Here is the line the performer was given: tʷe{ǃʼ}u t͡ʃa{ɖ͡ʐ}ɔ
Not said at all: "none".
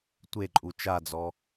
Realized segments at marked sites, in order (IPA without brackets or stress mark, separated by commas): ǃʼ, d͡z